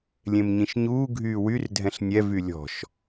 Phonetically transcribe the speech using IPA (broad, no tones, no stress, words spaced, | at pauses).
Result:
lʲẽmɲĩʃɲuː ɡʱyːwyr dʱɛ̃ɬnʲɛ vylʲɔ̤ʃ